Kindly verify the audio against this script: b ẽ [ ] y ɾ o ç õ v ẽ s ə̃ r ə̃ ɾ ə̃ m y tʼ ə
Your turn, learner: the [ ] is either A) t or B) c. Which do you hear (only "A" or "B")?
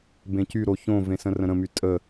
B